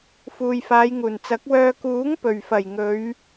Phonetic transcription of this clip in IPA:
f uː˨ j f aː˨˧ j ŋ uː˨˩ n t͡s ɐ˨˥ k̚ w œː˧ k uː˨˥ ŋ p ɵ˨˩ ɥ f ɐ˨˩ j ŋ ɵ˨˧ ɥ

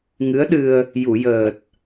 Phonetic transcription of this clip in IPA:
ŋ ɨ˧˥ ə̯ ɗ ɨ˧ ə̯ | j u˨˩˨ j əː˨˩ t̚

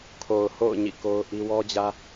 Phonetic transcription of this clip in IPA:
kʰ o˨ ʊ̯ h o̰˦˨ ʊ̯ ɲ ḭ˦˨ k o˦ ʊ̯ ʔ i˦ w ɔ˦ d͡ʑ ä˦

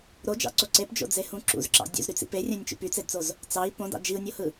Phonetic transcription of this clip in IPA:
ɾ o d͡ʒ ɑ̰ ǀ o ǀ e p d͡ʒ o̰ d͡z e h ũ ǁ ṵ z ǁ ɑ̰ dʲ ṵ z ɾ y t͡s ḭ p e rʲ æ̃ nʲ t͡ʃ ṵ p y t͡s e d t͡s o z | t͡s ɑ i̯ p õ d ɑ̰ d͡ʒ i u̯ nʲ o h ɯ

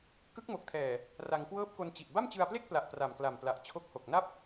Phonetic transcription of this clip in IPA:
k ɯ˦˥ k̚ m o˨˩ k̚ tʰ ɛː˨˩ | r a˧ ŋ k w ɤː˥˩ p̚ k o˧ n t͡ɕ i˨˩ ʔ b a˥˩ m t͡ɕ ɯ˧ a̯ p l e˥˩ k̚ p l a˨˩ ʔ p r a˨˩ m k l a˨˩ m p l a˨˩ ʔ t͡ɕʰ o˦˥ k̚ h o˨˩ k̚ n a˥˩ p̚

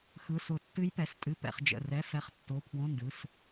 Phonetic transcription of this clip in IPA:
x ɯ˧˥˧ s ʊ˦˨ tː ɨ˦˥ j p ɛ˩˧˩ s tʼ ɨ˧˥˧ p ɛ̰˧˥˧ χ d͡ʒ ə̰˩˧˩ r ɛ˧˥˧ f ɛ˦˥ χ tː o˧˥˧ pʰ w õ˧˥˧ n d ɯ˩˧˩ s

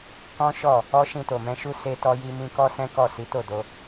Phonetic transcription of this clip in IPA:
k ɔ̃˦ ʃ ɔ˦˨ | ɔ˦ ʃ ĩ˧ t o˨ m ɛ̃˧ ʃ u˦ s e˧ t ɔ˧ j i˧ m ĩ˧ k ɔ˦ s ɛ̃˦ k ɔ˦˨ s i˨˦ t o˦˨ d o˧

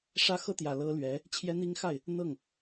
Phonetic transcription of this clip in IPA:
ʂ ä˥ x ɤ˥ t̪ j ä˨˩ l ɤ˥ l ɥ ɛ˧˥ | t͡ɕʰ j ɛ˥ n̪ i˥ ŋ x a˥˩ ɪ̯ | n̪ ɤ˥˩ ŋ

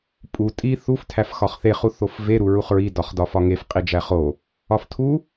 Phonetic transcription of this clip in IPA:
pʼ u tʼ i θ u f tʰ æ f x ɒ χ θ e χ u θ o f v e ɾ u ɹ u χ ɹ i d ɒ χ d ɒ f ɒ ŋ e f qʼ i d͡ʒ æ χ o | ɒ f tʰ u

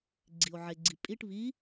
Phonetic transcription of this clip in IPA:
ɡ͡ǀ i o̯ ʕ e ɡ͡ǀ i pʼ i ʈ β i

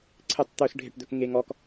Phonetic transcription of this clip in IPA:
ǀʰ ɪ tˤ t̪ ɵ s ɖʱ ɪ ʈ d̪ ɵ k ŋ e ŋ ɔ k

